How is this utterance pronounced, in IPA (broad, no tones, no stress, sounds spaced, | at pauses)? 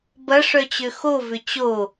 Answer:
b ɐ ʂ œ t͡ɕ ø x o v ʏ t͡ɕ o